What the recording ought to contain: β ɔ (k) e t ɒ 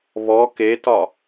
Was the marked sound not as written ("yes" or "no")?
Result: no